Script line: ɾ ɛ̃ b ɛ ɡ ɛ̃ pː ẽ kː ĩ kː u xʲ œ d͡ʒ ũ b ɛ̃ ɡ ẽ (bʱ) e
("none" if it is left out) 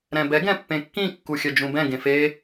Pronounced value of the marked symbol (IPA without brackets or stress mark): f